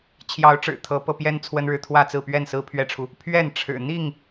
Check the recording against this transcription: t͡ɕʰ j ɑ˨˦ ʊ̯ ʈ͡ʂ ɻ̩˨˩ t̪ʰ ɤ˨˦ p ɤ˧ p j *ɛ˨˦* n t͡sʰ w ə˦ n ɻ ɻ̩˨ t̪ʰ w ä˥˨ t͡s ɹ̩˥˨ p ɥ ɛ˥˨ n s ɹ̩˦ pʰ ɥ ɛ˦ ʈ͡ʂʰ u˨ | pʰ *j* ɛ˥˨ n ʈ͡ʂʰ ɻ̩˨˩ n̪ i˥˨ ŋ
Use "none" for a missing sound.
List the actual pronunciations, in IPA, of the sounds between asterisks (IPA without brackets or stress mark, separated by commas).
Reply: ɛ˦, ɥ